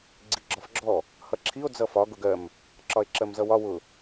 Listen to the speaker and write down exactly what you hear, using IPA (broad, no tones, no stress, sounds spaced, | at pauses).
ɡ͡ǀ i ɡ͡ǁ ɒ f ɡ͡ǁ ɔ | h ʌ ǁʰ i o̯ d͡z ʌ f ɒ ɡ ʊ ɡ ɜ m | ǁ ɒ e̯ ǁ ɜ m z ʌ w ɒ w ʊ